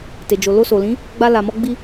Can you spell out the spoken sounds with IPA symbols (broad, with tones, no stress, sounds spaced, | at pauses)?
t e˨ d͡ʒ o˨ l o˧ s o˨ l ĩ˨˦ | ɡ͡b a˧ l a˨ m ɔ˧ ɡ͡b i˧